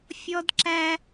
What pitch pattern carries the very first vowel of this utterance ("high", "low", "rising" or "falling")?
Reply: high